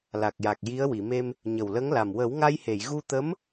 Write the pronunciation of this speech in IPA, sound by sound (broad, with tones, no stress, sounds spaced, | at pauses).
l a˨˩ k̚ j a˨˩ k̚ j i˧˥ ə̯ w i˨˩˨ m e˧ m | ɲ ə˨˩ w l ə˧˥ ŋ l a˨˩ m w ə˨˩˦ w ŋ a˧ j h e˨˩˨ j ɣ u˧ t̪ ə˧˥ m